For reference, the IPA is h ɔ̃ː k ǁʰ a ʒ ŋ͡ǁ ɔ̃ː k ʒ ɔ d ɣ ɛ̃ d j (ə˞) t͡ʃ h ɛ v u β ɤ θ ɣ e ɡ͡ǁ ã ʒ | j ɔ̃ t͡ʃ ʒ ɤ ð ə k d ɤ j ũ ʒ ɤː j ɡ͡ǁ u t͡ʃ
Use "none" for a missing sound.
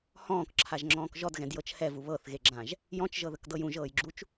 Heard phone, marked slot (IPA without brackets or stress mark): ɤ